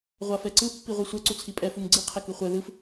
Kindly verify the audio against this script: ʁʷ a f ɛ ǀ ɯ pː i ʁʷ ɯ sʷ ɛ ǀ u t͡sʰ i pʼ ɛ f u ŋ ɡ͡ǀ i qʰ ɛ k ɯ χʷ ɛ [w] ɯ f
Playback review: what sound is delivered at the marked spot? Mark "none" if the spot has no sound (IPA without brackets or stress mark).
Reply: ð